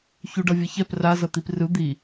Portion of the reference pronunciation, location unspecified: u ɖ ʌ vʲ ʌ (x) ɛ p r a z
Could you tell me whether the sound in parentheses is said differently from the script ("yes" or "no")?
yes